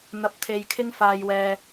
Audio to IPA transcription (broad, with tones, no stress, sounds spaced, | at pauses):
n̪ ɐ˧ p̚ t̪ʰ e˧ j kʰ ɪ˥ ŋ f aː˧ j w ɛː˧